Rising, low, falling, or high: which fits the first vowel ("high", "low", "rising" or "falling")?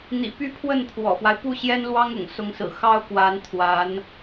low